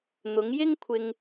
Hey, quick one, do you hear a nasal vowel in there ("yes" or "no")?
no